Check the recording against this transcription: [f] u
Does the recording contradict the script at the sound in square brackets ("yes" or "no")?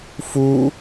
no